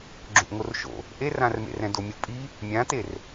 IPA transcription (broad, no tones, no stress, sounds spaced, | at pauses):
ɡ͡ǁ õ ʔ ŋ o r ʃ o̰ | ʔ e r ã r m ḛ r ɛ̃ d o mʲ u pʼ i | mʲ ã t e r